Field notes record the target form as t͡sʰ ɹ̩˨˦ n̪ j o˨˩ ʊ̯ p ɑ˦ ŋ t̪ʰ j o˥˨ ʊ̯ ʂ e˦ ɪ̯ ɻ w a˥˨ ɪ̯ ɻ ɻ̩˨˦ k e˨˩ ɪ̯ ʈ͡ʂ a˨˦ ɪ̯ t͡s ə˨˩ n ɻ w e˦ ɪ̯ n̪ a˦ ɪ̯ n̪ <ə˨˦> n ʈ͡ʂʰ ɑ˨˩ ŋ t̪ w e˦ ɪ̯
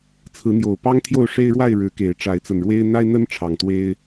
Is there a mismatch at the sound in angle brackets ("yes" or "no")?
yes